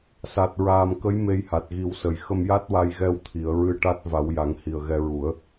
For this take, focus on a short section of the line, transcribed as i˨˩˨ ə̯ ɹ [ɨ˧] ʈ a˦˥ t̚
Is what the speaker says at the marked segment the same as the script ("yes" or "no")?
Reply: yes